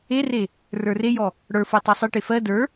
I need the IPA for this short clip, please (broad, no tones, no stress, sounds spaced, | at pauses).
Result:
e r e | r ə˞ r e j ɔ | ɽ ə˞ f o tˤ ɜ sˤ e ʈ e f ɜ d ə˞